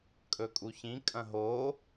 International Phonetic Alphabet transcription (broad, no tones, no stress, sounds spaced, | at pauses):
kʼ ɵ kʼ u ç ĩ kʼ ɐ̃ ɦ o